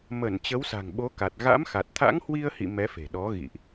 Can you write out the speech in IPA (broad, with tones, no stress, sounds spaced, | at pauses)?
m ə˧˩ n t͡ɕ ə˨˦ w s a̤˨˩ ŋ ɓ o˨˦ k a˨˩ t̚ ɣ a̰˧˥ m x a˨˩ t̚ t̪ʰ a̰˧˥ ŋ h w i˧ ə̯ h ḭ˧˨ m ɛ˨˦ f e̤˨˩ ɗ ɔ˨˦ ɣ ḭ˧˨ ʔ